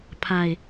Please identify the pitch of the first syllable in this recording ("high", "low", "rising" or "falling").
low